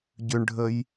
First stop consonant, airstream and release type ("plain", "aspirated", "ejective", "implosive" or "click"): plain